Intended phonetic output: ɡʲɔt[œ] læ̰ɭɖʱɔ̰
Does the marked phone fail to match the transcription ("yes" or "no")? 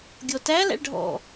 yes